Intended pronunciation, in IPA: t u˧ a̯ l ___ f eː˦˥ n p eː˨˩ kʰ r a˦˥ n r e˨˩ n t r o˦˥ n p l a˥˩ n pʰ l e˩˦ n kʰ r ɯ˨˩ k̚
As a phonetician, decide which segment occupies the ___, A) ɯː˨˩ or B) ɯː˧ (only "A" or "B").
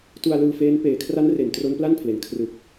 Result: B